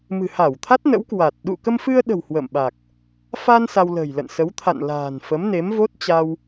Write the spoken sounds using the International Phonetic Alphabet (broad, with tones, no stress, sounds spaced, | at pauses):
m ɨ̤˨˩ h a˧˩ w t̪ʰ a˦˥ t̚ n ə̰˧˥ w k w a˨˩ t̚ ɗ ṵ˧˨ k ə˧ m f ɨ˧ ə̯ ɗ ə̤˨˩ w h w ə̰˧˨ m ɓ a˨˩ k̚ | f a˧ n s a˧ w l ə̤˨˩ j l ə̰˧˨ n s ə˨˦ w t̪ʰ a̰˧˨ n l a̤ː˨˩ n f ə˨˦ m n e˨˦ m v o˦˥ t̚ t͡ɕ a˧ w